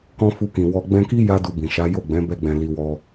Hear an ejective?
no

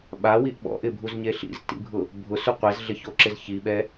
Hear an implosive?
yes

